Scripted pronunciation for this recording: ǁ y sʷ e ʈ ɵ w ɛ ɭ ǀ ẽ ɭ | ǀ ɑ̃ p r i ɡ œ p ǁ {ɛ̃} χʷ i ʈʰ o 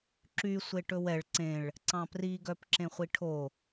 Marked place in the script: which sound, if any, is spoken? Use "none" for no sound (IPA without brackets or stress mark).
ẽ